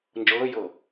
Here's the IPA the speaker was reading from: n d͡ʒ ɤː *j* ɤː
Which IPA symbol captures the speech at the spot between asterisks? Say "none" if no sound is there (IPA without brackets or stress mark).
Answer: j